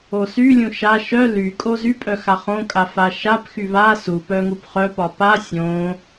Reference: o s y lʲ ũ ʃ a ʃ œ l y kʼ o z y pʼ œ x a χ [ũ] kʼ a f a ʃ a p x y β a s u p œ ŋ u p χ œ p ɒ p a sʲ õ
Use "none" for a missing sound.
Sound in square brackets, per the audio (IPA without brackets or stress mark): õ